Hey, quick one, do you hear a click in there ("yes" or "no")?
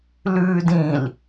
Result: no